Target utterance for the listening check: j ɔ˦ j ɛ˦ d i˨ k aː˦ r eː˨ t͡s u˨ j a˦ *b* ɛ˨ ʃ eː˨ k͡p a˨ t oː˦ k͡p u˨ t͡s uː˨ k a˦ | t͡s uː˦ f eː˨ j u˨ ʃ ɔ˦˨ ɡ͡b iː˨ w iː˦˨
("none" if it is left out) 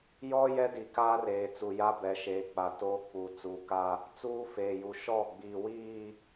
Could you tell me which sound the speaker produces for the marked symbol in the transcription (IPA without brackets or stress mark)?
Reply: b